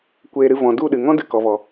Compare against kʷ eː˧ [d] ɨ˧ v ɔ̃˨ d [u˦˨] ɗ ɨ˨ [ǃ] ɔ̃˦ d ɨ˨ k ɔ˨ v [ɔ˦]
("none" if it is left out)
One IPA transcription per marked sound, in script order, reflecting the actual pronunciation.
ɾ, u˦˨, ŋ, ɔ˨

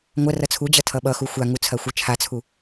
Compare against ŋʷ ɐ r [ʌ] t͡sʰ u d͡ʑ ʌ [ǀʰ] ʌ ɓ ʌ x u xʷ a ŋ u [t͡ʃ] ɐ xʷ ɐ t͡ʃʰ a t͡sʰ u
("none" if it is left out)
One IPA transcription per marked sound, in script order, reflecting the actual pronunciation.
ʌ, tʰ, t͡sʰ

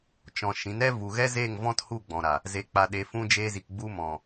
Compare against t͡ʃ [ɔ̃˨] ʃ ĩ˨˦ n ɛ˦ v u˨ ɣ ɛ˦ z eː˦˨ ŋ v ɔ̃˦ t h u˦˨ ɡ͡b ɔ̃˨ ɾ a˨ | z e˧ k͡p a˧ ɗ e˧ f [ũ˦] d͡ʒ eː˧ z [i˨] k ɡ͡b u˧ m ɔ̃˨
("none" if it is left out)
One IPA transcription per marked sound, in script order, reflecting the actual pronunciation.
ɔ̃˨, ũ˦, i˨

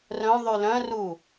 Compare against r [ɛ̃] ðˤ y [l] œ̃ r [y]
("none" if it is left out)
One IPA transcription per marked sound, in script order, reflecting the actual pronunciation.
œ̃, l, u

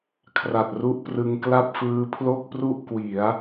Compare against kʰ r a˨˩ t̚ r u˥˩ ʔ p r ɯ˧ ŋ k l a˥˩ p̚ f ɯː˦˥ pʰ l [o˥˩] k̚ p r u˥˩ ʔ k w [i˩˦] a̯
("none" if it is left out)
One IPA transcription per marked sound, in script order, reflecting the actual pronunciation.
o˥˩, i˩˦

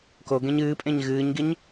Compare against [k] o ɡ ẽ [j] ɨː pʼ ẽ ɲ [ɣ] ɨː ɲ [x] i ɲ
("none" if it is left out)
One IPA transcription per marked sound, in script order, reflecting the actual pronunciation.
k, ɲ, ɣ, ɡ

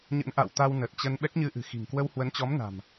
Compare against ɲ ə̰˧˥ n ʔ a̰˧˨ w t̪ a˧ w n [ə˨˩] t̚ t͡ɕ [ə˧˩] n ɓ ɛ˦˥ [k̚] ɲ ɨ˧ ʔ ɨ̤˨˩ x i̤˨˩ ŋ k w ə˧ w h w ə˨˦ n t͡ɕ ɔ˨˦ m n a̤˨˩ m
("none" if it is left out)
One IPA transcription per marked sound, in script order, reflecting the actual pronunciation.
ə˨˩, ə˧, k̚

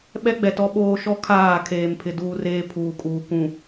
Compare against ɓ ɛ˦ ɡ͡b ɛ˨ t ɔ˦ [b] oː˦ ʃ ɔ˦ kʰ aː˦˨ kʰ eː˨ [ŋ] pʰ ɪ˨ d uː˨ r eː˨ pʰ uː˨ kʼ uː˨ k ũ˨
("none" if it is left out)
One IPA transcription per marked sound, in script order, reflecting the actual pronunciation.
ɓ, m

